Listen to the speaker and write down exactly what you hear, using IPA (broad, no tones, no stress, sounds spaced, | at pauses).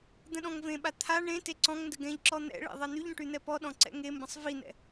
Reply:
d̪ ə̃ ɗ ɔ̃ ŋ v ẽ ɓ a t̪ʰ a ɳ ẽ t e ǀ ɔ̃ ŋ n d ə ɡ ɛ̃ ʎ ǁ ɔ n̪ ɛ̰ ɭ ḛ ðˤ ɛ n̪ y ʎ ɔ̃ ʈ y n̪ ɛ p ɔ ɗ ɔ̃ ǀ ɛ̰ ŋ e m b ə̃ sˤ v i n̪ ɛ̰